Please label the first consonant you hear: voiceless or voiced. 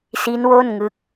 voiceless